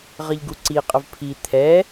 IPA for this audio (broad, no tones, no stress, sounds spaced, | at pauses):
ʁ ə ʎ ɡ u ǀ i qʼ ə v pʰ i t̪ʰ ɛ